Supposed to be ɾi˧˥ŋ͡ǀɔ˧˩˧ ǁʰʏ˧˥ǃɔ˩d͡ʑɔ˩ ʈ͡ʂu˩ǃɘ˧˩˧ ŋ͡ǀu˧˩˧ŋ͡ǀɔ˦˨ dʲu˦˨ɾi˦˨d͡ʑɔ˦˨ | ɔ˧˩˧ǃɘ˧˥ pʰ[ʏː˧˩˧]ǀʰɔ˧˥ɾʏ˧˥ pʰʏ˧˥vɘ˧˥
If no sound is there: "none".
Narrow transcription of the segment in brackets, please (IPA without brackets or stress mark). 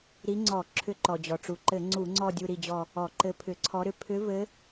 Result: ʏ˧˩˧